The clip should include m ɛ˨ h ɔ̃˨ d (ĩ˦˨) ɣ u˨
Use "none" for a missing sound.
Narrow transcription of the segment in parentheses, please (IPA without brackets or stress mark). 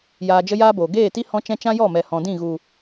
ĩ˦˨